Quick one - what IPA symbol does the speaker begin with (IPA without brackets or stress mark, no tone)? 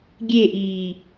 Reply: ɡʲ